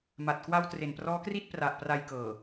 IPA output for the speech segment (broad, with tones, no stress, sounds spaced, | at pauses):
m a˨˩ t̚ k w a˧ w t r e˨˩ n p r ɔː˦˥ k r i˥˩ t̚ p r a˨˩ ʔ p r a˧ j k ɤː˨˩